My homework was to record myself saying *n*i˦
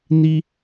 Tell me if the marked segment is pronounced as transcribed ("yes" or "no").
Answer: yes